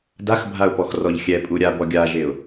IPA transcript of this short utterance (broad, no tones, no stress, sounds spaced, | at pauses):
d a x bʱ a ʊ̯ p ɔ x r ɔ ʎ xʲ ɛ pʼ u ɾʲ a b ɔ ɡʲ a ʒ e ʊ̯